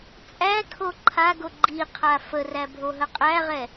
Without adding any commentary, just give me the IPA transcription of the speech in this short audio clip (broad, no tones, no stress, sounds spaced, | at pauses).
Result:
t͡sʼ æ kʰ o ǃʰ a ɡ o ɡ͡ǃ i qʰ a f ə r æ bʱ o ɦ ə qʼ æ ʁ ɛ